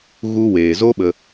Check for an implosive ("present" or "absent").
present